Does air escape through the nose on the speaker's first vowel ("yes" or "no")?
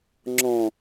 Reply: yes